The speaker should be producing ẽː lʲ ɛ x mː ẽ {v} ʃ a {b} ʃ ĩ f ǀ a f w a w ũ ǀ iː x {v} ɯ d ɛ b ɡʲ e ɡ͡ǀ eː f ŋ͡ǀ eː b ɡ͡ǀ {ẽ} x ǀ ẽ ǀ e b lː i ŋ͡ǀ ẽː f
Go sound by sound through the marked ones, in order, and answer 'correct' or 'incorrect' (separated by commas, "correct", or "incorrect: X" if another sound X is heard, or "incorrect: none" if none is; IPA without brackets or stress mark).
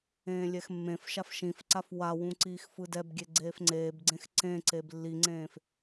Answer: incorrect: f, incorrect: f, incorrect: f, correct